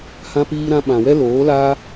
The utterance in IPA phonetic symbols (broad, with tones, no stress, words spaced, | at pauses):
hã˧piː˧ɾã˧ ɓã˨wɛ˦ loː˨˦laː˦